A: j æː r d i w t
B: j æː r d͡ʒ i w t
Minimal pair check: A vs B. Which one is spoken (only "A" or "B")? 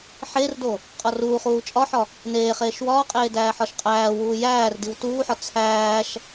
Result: A